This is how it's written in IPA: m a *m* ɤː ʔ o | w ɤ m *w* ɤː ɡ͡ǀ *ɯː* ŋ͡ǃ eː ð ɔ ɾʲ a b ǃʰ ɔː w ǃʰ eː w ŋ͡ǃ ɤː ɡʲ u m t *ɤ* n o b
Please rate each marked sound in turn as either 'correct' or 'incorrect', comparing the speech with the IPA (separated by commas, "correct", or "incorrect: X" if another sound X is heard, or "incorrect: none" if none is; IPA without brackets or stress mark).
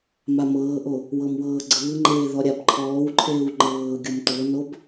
correct, correct, correct, correct